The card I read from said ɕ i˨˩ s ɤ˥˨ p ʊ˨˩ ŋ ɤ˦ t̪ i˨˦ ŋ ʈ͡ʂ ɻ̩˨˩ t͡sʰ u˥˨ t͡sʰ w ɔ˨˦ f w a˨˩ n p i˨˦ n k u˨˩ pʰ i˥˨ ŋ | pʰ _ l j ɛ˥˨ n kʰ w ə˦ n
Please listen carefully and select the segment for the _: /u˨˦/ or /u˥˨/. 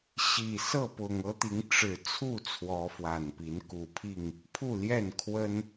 u˥˨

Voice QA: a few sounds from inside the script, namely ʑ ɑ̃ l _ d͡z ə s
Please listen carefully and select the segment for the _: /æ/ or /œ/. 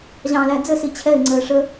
æ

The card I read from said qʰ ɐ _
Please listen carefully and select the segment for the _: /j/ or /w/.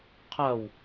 w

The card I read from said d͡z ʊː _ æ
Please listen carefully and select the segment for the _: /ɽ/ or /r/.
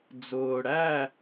ɽ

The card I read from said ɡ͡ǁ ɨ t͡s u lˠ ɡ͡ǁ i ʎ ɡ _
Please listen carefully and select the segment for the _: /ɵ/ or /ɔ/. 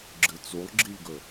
ɵ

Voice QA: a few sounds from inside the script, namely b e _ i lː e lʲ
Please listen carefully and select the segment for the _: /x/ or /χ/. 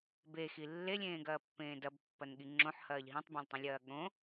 x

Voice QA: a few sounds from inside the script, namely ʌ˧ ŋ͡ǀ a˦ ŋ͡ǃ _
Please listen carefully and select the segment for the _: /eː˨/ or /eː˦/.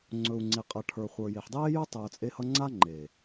eː˨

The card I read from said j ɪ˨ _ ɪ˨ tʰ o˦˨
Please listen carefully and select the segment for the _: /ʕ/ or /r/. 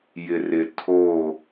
r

